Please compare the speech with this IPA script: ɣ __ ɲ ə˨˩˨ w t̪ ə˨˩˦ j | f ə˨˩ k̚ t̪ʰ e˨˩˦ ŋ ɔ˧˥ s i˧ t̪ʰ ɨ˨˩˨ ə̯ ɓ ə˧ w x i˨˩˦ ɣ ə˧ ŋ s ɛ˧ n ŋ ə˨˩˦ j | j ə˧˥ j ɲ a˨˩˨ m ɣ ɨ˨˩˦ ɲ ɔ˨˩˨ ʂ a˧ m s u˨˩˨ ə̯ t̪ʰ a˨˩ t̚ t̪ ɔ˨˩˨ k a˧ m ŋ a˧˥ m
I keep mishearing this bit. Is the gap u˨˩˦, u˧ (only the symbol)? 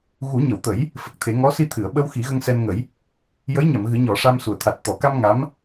u˨˩˦